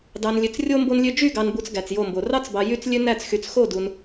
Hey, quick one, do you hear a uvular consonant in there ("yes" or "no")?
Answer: no